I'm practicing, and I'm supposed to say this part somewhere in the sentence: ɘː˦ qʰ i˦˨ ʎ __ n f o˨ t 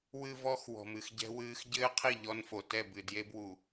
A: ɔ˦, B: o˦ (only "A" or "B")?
A